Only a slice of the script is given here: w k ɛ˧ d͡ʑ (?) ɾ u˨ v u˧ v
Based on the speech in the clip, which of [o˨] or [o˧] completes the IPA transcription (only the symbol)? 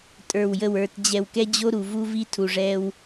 o˧